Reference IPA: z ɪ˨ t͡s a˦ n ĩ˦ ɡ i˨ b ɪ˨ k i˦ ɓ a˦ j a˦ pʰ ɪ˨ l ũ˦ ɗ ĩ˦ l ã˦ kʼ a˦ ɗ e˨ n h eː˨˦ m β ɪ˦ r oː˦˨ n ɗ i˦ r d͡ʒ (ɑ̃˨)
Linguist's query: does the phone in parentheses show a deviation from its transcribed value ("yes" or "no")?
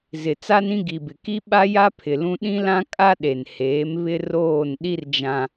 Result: yes